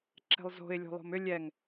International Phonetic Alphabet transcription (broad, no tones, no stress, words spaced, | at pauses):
ǁɛ̤lˠzo̤ɪ̯ lʲo̤lˠo̤mʏ lʲɛŋ